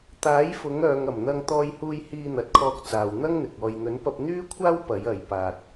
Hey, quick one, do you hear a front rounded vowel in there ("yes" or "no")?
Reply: yes